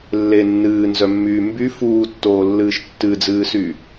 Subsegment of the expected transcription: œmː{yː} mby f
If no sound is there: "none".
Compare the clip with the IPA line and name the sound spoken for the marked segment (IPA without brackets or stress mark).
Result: yː